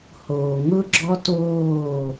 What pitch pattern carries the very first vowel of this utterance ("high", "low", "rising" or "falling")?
low